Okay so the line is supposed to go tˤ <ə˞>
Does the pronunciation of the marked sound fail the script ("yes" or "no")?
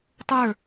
no